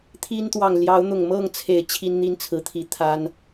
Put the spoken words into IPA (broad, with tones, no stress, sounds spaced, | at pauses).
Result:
t̪ʰ i˦ n t̪ w ɑ˨ ŋ l j ɑ˨˦ ʊ̯ n̪ ʊ˨˩ ŋ m ɤ˥˨ ŋ t͡sʰ e˨˩ ɪ̯ t͡ɕʰ i˦ n n̪ i˦ n t͡sʰ ɹ̩˨˦ t̪ʰ i˨˦ t̪ʰ a˦ n